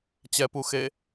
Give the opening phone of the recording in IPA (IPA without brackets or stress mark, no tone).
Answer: t͡ɕ